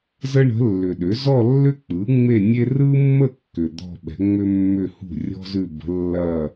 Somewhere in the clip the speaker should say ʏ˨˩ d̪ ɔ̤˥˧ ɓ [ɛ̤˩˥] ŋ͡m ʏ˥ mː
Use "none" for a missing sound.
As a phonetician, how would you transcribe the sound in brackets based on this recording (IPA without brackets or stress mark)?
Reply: ɛ̤˩˥